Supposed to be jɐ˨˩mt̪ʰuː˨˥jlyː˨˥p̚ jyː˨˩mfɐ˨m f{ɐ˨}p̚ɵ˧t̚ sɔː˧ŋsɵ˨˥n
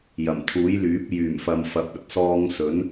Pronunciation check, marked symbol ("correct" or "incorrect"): correct